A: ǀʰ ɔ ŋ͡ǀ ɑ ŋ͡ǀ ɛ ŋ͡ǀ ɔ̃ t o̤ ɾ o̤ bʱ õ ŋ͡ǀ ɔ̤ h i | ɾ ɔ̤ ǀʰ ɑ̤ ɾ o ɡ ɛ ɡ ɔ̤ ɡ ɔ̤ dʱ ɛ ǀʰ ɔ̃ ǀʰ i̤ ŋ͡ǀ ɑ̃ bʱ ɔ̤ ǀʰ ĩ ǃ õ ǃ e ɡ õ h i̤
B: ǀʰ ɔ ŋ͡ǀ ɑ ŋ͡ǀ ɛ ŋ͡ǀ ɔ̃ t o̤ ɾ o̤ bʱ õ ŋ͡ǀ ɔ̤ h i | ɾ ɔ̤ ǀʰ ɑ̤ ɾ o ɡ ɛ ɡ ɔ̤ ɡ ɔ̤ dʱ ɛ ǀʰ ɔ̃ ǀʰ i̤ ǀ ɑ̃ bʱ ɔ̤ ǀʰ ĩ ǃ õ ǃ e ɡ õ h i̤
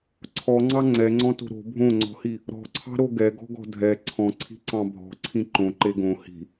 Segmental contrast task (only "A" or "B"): B